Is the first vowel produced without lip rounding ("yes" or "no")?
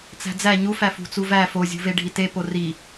yes